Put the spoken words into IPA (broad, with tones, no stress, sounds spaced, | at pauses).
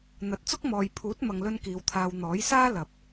n̪ ɐ˨˥ t̚ t͡s ʊ˥ k̚ m ɔː˨ j pʰ uː˨˥ t̚ m ɐ˨ ŋ l ɵ˧ n k iː˨˧ w t̪ʰ aː˧ w n̪ ɔː˨˥ j s aː˥ l ɐ˨ p̚